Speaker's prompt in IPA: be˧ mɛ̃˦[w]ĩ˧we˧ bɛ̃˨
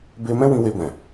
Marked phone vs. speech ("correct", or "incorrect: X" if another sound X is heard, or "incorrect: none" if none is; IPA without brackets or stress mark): correct